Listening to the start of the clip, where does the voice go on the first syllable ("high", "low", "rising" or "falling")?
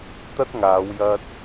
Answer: high